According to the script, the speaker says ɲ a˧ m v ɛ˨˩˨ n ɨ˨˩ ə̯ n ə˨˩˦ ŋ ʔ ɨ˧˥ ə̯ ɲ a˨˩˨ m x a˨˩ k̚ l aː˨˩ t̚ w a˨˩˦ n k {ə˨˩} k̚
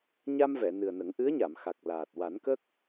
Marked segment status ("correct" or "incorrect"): incorrect